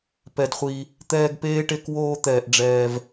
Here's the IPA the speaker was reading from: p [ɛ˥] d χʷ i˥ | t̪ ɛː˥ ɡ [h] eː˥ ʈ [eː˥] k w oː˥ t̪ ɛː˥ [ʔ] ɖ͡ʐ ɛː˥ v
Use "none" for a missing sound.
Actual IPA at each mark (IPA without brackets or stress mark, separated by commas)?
ɛ˥, p, e˥, ʔ